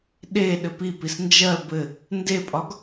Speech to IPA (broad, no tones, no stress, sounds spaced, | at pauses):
ɗ e ɗ ɘ p i p i s n d͡ʒ ɜ b ɘ | n d e pʼ ɒ ɡ